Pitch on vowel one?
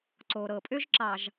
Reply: low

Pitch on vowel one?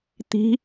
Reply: rising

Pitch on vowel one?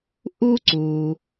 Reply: high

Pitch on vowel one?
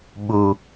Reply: low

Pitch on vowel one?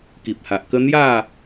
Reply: low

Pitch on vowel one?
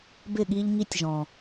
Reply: falling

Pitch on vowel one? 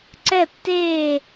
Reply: falling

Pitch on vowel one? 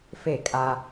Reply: falling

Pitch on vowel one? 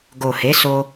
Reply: low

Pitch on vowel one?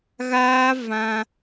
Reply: high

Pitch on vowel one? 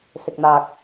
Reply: low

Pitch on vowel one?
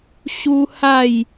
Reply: high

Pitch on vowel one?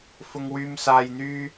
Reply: high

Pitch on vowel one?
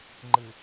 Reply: low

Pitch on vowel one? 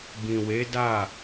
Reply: low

